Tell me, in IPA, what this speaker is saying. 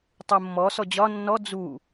tˤumːɔ sɔd͡ʑɒ nːɔ d͡zu

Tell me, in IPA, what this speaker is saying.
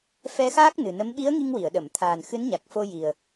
fɛ˧xaː˦˥k̚ nɨ˨˩nə˧˥m ɓi˧˥ə̯ ŋi˧ŋwi˨˩˨ə̯ɗə˨˩˨mt̪ʰaː˨˩n xɨ˧˥nɲa˨˩k̚fo˧ji˨˩ə̯

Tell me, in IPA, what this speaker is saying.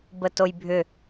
bətojbʱʏ

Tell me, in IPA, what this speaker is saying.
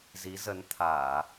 zi˨˦zə˨˦nt̪ʰaː˧˩˨

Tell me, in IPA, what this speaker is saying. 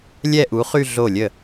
lʲɛ˥˧ʔu˨˥χy˥˧ ɮo˥˩lʲə˥˩

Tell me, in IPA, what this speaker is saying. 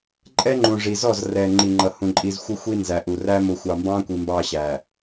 ǃʼɛ˦ŋ͡ǃũ˨ ʐi˨zɔ˦˨zrɛ˨ ŋ͡ǃi˨ŋ͡ǃʌ˨hũ˨ ǃʼi˨zxʷə˦ xʷi˦nzæ˨ʔu˨ræ˦ mʊ˨xʷɑ˨ mbɑ̃˦kʷi˨ mbɑ˨ ɕæ˨

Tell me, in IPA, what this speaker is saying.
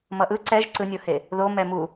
mʌʔɯ ǀɛʒ ǀɯnʲohe | ðomɛ mu

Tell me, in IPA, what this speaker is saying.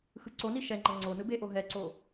xɯǀoni ʃɛŋ͡ǃʌ ŋ͡ǀo nɯbeʔo ɦɛǀo

